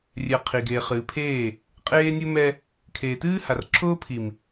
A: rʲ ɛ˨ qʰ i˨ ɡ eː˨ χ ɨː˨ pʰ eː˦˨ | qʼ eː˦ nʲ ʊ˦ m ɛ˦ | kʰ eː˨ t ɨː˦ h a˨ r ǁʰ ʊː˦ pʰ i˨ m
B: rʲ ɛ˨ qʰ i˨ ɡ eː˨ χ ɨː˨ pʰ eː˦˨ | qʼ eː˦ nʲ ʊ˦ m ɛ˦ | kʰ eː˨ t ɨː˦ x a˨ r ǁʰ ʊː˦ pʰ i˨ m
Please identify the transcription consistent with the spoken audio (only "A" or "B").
A